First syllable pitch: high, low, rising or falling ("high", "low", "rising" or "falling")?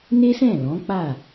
high